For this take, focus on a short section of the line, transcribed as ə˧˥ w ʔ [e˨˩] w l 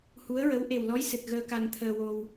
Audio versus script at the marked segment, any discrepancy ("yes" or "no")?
no